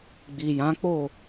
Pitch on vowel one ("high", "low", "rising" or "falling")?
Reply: low